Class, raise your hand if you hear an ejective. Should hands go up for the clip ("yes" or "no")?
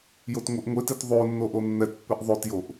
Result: no